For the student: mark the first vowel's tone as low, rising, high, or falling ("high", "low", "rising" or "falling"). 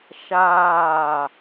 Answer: falling